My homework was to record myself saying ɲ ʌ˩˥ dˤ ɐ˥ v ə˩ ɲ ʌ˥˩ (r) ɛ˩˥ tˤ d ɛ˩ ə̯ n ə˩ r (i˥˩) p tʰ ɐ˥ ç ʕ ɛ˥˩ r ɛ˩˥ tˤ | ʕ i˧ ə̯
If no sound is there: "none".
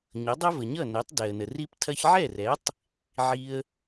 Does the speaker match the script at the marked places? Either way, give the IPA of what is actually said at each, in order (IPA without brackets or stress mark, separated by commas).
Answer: n, i˥